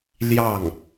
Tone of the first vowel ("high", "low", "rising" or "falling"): falling